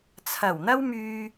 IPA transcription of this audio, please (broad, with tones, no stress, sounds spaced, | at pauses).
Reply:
t͡sʰ ɐ˨˩ w n̪ ɐ˥ w m yː˧